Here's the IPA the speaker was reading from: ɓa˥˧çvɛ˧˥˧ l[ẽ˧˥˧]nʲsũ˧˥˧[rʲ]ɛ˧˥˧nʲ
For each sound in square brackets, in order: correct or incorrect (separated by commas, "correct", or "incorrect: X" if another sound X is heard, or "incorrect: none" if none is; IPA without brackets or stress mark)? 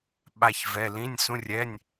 incorrect: ĩ˧˥˧, correct